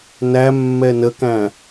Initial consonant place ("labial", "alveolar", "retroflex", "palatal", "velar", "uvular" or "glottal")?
alveolar